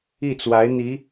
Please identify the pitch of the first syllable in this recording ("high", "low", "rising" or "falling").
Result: falling